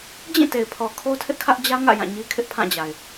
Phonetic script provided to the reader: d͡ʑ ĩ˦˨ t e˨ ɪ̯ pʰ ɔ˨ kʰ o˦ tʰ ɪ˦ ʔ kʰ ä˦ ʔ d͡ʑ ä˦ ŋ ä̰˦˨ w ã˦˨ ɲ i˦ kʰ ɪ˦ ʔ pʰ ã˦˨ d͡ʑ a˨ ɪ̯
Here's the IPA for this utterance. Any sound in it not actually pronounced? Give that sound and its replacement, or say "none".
w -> j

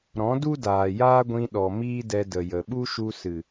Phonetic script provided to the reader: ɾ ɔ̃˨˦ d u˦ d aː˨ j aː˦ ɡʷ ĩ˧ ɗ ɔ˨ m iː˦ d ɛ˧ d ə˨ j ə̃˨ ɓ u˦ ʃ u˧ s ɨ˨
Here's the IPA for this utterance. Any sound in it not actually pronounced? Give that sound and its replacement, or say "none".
ə̃˨ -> ə˨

